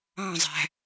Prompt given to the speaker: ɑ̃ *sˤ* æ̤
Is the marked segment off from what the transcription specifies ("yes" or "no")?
yes